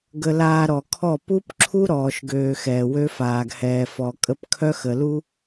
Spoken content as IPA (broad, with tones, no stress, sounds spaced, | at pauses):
ɡ ə˧ l aː˧ ɾ ɔ˨ kʰ ɔ˦˨ p u˦ p ǁʰ u˦ ɾ ɔː˧ ʃ ɡ øː˧ x ɛː˨ w ø˦ f aː˨ ɡ h ɛː˨ f ɔ˨ kʼ ə˧ p kʰ œ˦ x ə˨ l u˦